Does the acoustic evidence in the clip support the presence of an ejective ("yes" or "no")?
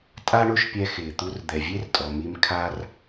yes